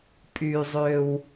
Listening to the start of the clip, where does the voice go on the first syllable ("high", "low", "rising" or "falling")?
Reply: low